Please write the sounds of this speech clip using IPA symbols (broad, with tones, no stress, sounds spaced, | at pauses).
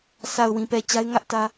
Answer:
s a˨ ʊ̯ w ĩ˨ p ɛ˨ t͡ɕ a˦ ɪ̯ ŋ ä˦ ʔ t ä˦